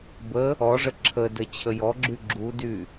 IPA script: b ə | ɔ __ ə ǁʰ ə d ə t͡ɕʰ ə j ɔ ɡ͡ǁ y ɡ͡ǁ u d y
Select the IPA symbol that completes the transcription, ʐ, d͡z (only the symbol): ʐ